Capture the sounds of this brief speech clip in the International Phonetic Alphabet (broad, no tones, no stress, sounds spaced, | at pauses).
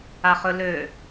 a χ ɵ l ø